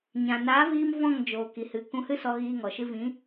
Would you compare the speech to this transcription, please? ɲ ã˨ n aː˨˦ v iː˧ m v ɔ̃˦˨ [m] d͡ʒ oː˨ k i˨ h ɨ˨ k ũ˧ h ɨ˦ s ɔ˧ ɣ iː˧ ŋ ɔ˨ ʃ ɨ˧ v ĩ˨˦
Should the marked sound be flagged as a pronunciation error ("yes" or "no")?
yes